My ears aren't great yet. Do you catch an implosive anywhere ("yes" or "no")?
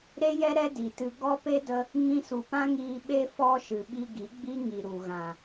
yes